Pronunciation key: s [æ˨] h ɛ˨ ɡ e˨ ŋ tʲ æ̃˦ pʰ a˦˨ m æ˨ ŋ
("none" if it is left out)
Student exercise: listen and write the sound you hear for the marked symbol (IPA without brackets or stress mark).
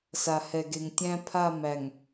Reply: a˨